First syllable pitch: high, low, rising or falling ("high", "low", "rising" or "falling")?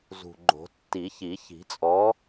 low